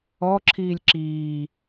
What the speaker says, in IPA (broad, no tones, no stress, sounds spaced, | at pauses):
ɔ ǁʰ iː lʲ ǁ iː